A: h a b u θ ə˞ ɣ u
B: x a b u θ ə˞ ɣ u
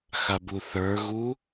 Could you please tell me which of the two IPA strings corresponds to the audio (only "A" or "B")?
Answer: B